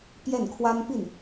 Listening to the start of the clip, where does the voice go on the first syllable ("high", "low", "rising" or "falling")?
falling